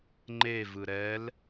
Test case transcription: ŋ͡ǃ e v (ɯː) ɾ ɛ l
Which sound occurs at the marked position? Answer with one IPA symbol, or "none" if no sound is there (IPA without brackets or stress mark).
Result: ɯ